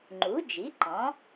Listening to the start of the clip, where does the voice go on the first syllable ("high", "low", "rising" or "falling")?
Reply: rising